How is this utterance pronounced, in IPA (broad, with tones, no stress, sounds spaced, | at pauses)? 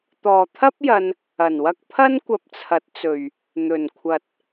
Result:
t̪ ɔː˨ t̪ʰ ɐ˥ p̚ j ɐ˧ n | ɐ˨˩ n w ɐ˧ k̚ pʰ ɐ˥ n kʷ ɐ˧ p̚ t͡sʰ ɐ˨˥ t̚ t͡s ɵ˨ ɥ | n̪ ɵ˨˩ n kʷʰ ɐ˨ t̚